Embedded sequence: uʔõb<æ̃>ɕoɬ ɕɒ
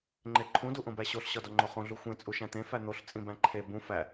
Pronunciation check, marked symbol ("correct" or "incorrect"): incorrect